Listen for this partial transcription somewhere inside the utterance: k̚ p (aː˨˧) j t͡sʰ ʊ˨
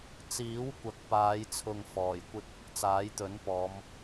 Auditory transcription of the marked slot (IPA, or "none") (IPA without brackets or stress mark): aː˨˧